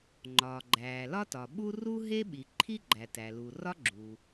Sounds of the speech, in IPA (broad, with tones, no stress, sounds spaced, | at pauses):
ŋ͡ǃ ɒː˩ ɡ͡ǃ æː˩ l ɒ˥ t ɒ˩ ɓ u˥ r u˥ ɦ e˥ ɓ i˩ ǃʰ i˥ ɡ͡ǃ æ˩ t æ˩ l u˩ r ɒ˥ ɡ͡ǁ u˩